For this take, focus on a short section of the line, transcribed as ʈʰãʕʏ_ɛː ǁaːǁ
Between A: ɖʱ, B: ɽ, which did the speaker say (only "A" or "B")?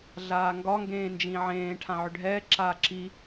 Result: A